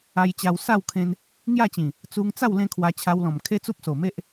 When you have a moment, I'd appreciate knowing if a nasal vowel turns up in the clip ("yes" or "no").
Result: yes